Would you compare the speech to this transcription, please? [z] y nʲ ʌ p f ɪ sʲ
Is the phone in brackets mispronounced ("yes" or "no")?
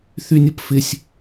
yes